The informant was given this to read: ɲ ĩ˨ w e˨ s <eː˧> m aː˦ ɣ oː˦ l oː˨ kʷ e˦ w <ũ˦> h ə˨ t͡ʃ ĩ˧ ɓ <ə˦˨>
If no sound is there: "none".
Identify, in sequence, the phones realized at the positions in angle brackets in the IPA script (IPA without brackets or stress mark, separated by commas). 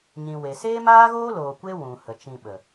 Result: eː˦, ũ˨, ə˨